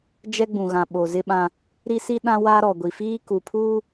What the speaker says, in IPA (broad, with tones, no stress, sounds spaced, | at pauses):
d͡ʒ ɛ˦ ɡ͡b ũ˨ ɣ ã˨ ɓ o˨ z ɪ˦ ɓ ã˦ | ɾ i˦ s i˦ ɗ ã˦ w a˦ ɾ ɔ˨ ɡʷ i˨ f iː˦ k u˨ pʰ uː˦